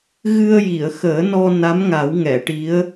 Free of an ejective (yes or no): yes